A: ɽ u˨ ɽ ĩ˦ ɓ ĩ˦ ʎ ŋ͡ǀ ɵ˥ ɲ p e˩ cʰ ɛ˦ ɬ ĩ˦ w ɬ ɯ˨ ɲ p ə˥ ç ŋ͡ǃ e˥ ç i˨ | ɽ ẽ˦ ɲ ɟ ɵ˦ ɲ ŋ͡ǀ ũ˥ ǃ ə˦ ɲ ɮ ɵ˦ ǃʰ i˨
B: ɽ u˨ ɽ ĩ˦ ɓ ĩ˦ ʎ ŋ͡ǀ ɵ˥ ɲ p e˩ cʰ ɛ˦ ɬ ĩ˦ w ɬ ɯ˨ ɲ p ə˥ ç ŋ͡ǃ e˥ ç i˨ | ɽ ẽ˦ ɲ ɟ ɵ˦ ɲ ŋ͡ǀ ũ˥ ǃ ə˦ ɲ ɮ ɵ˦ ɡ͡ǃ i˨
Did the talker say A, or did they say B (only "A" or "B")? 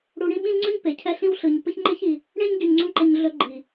B